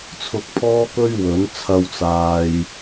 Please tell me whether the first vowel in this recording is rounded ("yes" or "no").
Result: yes